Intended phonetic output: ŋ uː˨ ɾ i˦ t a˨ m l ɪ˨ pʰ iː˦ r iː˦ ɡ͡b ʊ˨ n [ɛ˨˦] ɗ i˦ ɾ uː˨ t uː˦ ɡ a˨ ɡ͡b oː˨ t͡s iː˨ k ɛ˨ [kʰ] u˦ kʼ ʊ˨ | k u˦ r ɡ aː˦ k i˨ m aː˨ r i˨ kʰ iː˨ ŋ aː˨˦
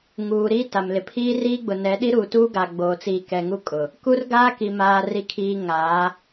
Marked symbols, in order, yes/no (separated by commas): yes, no